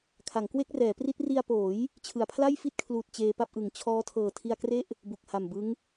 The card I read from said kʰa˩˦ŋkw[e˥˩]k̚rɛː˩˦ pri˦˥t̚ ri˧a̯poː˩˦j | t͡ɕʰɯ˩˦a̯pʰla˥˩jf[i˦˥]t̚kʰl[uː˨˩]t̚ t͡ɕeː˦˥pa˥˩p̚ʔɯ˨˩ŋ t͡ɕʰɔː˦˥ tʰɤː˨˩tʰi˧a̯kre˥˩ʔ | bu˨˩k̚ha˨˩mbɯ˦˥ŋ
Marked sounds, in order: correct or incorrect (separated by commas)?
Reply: correct, incorrect, correct